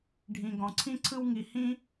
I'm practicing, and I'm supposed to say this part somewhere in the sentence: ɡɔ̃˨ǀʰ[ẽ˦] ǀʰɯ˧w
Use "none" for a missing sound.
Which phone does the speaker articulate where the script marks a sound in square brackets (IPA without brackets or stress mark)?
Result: ĩ˦